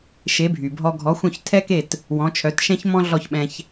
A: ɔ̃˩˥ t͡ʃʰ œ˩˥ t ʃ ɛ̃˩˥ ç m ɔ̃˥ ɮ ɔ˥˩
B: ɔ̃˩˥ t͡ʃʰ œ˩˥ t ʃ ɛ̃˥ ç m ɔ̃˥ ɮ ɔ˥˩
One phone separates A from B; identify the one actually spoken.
B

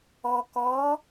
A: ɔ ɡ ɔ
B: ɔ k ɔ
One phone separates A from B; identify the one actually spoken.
B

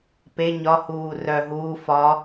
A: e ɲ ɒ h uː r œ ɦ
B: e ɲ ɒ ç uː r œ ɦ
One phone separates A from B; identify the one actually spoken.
A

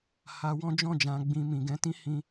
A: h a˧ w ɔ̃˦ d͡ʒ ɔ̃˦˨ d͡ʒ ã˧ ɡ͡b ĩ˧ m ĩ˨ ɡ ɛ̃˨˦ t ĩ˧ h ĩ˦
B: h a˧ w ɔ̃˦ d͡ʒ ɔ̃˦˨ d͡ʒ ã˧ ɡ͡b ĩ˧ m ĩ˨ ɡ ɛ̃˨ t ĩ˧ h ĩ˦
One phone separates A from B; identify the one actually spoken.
A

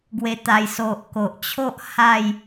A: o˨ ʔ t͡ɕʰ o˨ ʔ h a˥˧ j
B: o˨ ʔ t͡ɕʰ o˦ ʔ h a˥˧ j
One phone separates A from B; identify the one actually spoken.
B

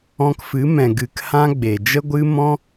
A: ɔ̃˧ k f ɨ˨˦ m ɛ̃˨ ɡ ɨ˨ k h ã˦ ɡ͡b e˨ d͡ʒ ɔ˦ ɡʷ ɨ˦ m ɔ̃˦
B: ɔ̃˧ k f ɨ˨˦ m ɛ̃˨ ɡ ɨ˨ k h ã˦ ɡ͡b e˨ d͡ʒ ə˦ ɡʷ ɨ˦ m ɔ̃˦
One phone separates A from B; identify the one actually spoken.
B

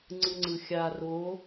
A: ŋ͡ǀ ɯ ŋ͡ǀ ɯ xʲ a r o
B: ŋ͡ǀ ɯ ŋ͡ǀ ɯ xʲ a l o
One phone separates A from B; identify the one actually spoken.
A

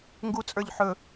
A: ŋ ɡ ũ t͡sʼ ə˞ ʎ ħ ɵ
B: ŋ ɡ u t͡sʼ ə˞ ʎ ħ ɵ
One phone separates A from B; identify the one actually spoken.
B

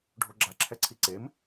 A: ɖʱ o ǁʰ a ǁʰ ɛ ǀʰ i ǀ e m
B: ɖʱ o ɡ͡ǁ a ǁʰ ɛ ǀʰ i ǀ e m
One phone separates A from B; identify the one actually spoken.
B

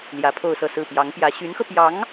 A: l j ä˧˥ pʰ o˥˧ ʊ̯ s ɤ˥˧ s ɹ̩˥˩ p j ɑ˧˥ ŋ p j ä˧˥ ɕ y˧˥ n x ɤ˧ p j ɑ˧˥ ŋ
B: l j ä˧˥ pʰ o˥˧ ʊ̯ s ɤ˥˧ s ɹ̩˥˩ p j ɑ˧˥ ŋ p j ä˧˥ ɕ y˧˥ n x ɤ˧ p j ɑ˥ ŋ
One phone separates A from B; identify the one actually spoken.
A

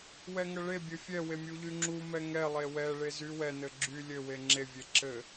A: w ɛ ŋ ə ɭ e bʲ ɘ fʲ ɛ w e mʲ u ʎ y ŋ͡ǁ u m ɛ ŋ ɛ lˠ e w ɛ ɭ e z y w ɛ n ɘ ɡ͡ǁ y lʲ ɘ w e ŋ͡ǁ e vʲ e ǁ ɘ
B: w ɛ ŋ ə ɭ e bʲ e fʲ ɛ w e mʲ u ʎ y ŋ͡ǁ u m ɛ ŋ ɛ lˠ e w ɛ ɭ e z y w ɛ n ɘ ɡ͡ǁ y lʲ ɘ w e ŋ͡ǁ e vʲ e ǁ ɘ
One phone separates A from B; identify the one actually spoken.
A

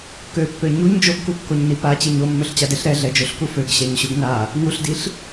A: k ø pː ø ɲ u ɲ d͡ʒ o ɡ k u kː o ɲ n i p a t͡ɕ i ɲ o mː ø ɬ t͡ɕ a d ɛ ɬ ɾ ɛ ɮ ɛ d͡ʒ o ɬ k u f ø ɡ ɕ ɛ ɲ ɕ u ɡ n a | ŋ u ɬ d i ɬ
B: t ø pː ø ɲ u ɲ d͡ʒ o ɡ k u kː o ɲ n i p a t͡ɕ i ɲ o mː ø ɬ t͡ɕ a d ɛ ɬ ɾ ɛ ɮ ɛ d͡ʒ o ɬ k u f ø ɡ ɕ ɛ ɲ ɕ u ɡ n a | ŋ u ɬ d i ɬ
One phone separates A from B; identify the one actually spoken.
A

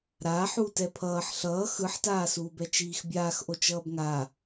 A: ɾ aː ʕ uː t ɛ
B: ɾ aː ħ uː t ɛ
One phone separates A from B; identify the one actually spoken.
B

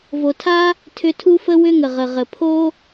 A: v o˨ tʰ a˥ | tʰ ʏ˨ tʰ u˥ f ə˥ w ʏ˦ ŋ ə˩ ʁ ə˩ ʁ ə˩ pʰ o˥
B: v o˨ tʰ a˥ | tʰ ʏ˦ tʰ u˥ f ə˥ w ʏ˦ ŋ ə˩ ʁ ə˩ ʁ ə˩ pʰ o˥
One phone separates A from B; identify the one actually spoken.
B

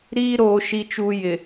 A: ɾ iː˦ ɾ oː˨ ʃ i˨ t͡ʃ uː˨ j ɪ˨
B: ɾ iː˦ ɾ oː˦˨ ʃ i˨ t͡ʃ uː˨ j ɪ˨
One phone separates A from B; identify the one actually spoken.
A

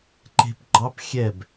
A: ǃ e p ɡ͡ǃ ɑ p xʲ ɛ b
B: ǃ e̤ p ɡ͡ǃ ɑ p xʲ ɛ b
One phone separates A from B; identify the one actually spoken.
B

